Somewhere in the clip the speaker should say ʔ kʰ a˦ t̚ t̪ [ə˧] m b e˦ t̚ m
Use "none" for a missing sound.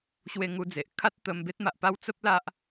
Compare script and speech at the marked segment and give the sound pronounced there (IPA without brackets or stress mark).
ə˧